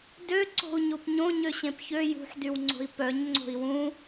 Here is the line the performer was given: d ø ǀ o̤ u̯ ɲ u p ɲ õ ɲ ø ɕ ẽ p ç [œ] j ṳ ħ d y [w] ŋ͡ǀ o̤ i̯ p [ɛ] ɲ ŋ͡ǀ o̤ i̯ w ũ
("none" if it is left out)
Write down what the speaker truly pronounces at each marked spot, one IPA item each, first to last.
ø, w, œ

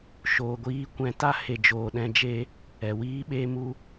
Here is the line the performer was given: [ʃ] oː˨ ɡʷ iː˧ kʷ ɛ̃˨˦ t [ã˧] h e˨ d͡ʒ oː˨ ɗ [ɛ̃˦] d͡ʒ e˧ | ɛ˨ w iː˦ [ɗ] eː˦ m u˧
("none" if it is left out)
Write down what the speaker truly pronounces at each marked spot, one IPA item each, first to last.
ʃ, a˧, ɛ̃˧, ɓ

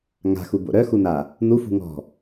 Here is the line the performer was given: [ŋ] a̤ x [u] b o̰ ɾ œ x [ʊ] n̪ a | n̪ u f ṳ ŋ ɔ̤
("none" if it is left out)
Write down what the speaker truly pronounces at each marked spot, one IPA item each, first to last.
ŋ, u, u

